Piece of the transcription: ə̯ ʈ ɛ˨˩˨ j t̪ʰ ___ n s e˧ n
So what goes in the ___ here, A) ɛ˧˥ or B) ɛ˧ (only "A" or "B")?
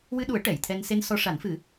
B